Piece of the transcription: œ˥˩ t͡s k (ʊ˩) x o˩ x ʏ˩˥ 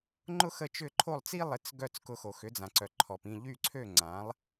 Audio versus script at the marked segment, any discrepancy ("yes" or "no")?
yes